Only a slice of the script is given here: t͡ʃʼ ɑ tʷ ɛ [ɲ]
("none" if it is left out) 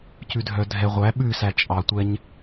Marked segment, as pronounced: ɲ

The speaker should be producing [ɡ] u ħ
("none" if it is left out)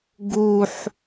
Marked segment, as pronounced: ɡ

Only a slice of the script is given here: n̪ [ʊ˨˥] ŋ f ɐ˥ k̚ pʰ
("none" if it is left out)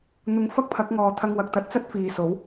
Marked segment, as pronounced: ʊ˨˥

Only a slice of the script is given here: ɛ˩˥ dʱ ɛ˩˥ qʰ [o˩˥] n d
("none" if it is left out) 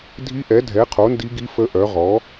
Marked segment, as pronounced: o˩˥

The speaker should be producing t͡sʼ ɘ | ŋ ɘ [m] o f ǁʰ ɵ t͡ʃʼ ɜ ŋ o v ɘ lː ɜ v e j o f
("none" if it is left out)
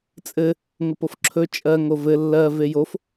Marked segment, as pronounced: p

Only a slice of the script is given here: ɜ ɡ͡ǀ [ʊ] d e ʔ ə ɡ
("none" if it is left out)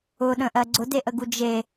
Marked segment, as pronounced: ʊ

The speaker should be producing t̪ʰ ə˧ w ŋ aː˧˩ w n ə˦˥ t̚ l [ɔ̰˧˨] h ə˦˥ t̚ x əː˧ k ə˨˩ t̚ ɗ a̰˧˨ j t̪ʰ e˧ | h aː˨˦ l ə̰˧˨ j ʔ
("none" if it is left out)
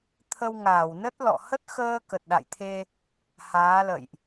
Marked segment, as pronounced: ɔ̰˧˨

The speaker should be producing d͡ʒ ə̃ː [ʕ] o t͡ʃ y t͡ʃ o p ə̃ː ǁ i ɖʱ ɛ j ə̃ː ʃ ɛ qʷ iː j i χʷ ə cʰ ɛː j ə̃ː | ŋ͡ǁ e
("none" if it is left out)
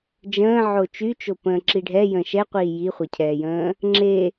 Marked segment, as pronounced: ʕ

